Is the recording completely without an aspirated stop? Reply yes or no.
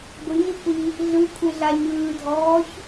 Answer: no